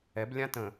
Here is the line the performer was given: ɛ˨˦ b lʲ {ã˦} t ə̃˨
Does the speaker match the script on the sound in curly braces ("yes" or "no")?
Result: yes